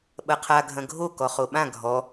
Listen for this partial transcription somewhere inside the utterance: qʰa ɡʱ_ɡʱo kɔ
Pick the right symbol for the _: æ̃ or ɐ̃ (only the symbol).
ɐ̃